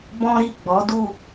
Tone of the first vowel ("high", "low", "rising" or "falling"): high